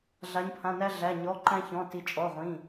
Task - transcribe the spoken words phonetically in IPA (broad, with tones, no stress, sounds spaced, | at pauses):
ɮ a˩˧ ɲ pʰ ã˩˧˩ n æ˧ ɮ æ˩˧˩ ɲ ɔ˩˧˩ ǃ æ̃˧ ç ɔ̃˩˧˩ t i˩˧ t͡ʃʼ ɔ˩˧˩ ʁʷ ĩ˩˧˩